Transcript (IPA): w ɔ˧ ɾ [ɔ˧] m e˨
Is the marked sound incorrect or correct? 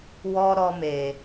correct